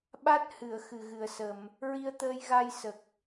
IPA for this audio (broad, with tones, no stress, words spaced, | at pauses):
ɓa˦˥t̚hɨ˨˩˨ə̯ xɨ˨˩ɣɨ˨˩ə̯sə˨˩˨m | ɹi˧ə̯t̪əː˧jɣa˧j sə˨˩k̚